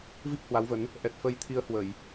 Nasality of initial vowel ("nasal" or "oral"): oral